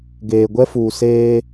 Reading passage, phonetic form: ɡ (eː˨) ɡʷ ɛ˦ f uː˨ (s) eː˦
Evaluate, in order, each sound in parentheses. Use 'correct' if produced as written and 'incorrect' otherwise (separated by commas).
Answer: correct, correct